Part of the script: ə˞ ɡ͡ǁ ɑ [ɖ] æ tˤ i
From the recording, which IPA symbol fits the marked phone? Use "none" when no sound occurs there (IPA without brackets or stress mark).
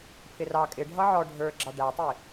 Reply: ɖ